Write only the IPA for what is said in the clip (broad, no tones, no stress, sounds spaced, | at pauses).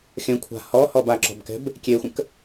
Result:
x ẽ kʷʰ a̤ h ɔ h ɔ b a ǁ ɔ̤ b k ɛ̤ b | kʲ e xʷ ə̃ k